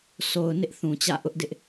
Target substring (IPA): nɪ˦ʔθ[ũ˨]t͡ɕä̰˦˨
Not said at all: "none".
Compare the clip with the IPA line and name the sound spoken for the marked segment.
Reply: ũ˨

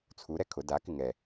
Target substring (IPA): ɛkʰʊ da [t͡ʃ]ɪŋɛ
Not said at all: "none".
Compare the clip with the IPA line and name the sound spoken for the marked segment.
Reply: k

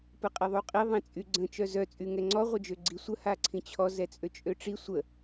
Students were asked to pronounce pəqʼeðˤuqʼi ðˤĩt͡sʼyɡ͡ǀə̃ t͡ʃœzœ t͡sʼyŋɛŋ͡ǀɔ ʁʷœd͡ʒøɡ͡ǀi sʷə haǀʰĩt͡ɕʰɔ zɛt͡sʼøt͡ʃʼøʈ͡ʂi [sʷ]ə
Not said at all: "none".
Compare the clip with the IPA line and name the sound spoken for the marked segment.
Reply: sʷ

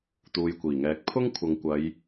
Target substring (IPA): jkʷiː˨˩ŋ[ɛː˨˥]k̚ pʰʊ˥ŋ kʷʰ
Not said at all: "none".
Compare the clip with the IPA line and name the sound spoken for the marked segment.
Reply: ɛː˨˥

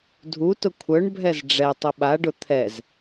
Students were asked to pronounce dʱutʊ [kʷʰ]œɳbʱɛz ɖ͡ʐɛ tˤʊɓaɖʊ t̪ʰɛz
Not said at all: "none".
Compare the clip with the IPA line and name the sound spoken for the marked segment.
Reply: kʷʰ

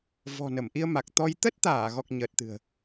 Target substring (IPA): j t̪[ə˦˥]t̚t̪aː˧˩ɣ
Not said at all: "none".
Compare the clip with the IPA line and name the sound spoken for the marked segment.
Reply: ə˦˥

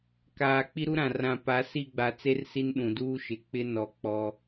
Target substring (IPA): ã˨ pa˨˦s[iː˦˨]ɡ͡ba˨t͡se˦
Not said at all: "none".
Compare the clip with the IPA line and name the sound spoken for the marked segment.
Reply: i˦˨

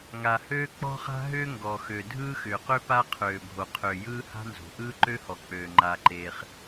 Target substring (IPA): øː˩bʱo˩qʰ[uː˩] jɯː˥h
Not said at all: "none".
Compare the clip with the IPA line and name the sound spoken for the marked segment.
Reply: ʏː˩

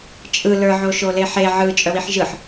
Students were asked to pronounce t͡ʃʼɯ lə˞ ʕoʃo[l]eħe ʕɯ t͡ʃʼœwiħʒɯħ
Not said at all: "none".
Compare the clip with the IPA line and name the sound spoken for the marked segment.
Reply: l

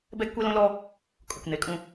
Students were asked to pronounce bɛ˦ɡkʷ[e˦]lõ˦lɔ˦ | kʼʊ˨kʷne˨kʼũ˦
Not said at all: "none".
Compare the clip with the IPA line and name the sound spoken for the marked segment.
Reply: e˦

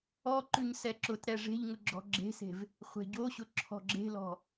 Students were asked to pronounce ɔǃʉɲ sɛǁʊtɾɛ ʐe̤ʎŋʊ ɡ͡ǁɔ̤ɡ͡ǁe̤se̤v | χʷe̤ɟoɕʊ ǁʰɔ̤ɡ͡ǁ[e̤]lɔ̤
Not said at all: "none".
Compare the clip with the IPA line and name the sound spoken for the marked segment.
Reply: e̤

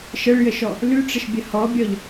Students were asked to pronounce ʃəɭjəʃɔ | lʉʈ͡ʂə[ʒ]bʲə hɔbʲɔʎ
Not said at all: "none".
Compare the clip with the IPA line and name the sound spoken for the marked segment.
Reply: ʃ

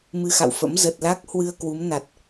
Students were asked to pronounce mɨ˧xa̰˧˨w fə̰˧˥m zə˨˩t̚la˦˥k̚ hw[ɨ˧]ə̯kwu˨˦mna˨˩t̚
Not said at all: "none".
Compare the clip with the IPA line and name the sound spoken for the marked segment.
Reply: ɨ˧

